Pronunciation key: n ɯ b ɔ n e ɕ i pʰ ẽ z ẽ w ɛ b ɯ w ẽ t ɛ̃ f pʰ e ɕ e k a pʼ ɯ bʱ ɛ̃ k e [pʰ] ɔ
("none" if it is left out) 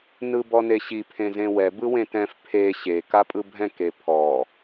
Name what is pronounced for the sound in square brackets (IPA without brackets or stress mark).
pʰ